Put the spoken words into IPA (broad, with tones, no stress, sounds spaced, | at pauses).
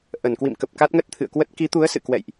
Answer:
ʔ ə˧˩ n k w ḭ˧˨ m k ə˨˩ p̚ k a˦˥ t̚ ŋ ə˦˥ t̚ t̪ʰ ɨ̰˧˨ ə̯ k w ə˦˥ t̚ k i˨˦ t̪ u˨˦ ə̯ s ɨ̰˧˨ k w ɛ̰˧˨ j ʔ